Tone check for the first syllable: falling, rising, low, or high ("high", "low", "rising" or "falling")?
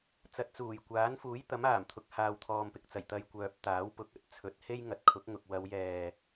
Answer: low